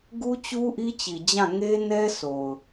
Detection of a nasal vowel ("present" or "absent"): present